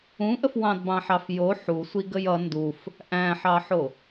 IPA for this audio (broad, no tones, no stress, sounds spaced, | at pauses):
ũ ʔ ə f w ɑ̃ d b ɑ̃ ħ ɑ f j o ħ u sʷ i ɡ ə j ʌ n d u f | ʔ æ̃ ħ ɑ ħ o